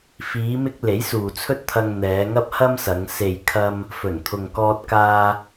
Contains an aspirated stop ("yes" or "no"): yes